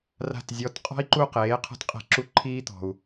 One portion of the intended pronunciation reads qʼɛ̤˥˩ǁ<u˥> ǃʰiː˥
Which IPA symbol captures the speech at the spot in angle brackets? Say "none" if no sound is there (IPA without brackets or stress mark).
u˥